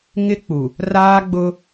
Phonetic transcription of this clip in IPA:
ŋ ɪ˦ k͡p u˨ | r aː˦ ɡ͡b ʊ˦

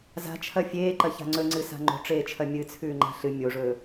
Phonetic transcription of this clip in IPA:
z a̤ t͡ʃʰ ɐ fʲ eː ǃ ɐ ç a̤ ŋ͡ǀ ɵ ŋ͡ǀ ɨ s a̤ ŋ͡ǃ o̤ ʈ͡ʂ eː t͡ʃʰ ɐ mʲ ɨ t͡sʰ ʉː ŋ͡ǃ a̤ ɬ ɨ mʲ o ʐ ɵː

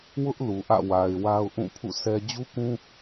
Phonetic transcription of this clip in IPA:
w ʊ˦ ʔ l u˨ ʔ ä̰˦˨ w a˨ ɪ̯ w a˦ ʊ̯ ʔ ũ˦˨ pʰ ṵ˦˨ sʰ ɛ˦ d͡ʑ u˦ k ũ˦

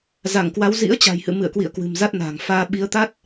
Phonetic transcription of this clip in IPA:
z a˧˩ ŋ k w a˨˦ w z ḭ˧˥ ə̯ t͡ɕ a̤˨˩ j h ɨ̰˧˨ m ɨ̰˧˨ ə̯ k w ḭ˧˨ ə̯ k w ɨ̤˨˩ m z a˦˥ t̚ n a̤ː˨˩ ŋ f aː˧ ɓ i˨˦ ə̯ t̪ a˦˥ t̚

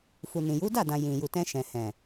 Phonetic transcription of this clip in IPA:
f u˨ n ĩ˨ j u˨˦ d a˦˨ d ã˨ j ĩ˨ j u˨ t ɛ̃˧ ʃ ɛ̃˨ h ɛ̃˨

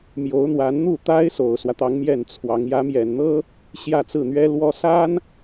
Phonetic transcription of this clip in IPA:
m j o˧˥ ʊ̯ n̪ w a˧˥ n n̪ u˥˩ t̪ a˥ ɪ̯ s o˨˩ ʊ̯ s w ä˦ t̪ ɑ˧˥ ŋ m j ɛ˥˩ n t͡sʰ w ɑ˧˥ ŋ j ä˧˥ m j ɛ˨˩ n n̪ ɤ˥ | ɕ j ä˥˧ t͡s ɹ̩˥˩ n̪ ɥ ɛ˥ l w ɔ˥ s a˥ n

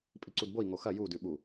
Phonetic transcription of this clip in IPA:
pʼ i ǀ u d b o i̯ ŋ o x ɐ j u d ʉ ɓ u

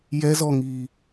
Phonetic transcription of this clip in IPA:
j ɛ z ɔ ŋ iː

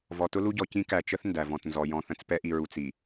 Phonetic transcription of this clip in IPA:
v ɔ˨ t ʊ˦ l u˦ ɟ ɔ˨ c ĩ˦ k æ˨ t͡ʃ ə˦ θ n d æ˨ v ɔ̃˨ t n z ɔ˨ j ɔ̃˨ θ ə̃˨ t͡s p ɛ˦ ʔ i˨ ɹ u˨ t͡s i˨

